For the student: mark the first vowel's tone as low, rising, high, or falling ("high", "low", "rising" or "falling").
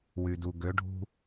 low